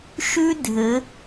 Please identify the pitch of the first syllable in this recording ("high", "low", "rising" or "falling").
high